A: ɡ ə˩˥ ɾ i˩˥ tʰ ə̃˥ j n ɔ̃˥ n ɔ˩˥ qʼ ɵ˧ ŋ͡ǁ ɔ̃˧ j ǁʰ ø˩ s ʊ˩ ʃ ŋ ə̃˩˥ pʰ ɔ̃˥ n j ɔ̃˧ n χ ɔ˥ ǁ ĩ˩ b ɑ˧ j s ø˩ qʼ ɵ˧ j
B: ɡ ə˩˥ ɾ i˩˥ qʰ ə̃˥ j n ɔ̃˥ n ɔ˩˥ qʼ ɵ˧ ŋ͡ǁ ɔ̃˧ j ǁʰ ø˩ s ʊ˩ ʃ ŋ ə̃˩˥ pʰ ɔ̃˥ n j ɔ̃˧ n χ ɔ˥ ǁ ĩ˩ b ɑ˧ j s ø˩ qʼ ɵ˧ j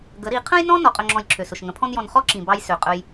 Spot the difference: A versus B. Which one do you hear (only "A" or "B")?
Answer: B